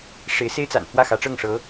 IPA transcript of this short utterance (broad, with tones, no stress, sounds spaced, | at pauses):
ʂ e˧˥ ɪ̯ s e˥ ɪ̯ t͡s a̰˨˩ n f w ä˥˩ x ä˧˥ ʈ͡ʂ ɤ˥˩ ŋ ʂ ɤ˧˥